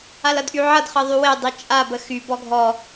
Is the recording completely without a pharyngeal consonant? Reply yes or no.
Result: no